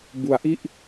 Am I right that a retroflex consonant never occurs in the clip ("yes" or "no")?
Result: yes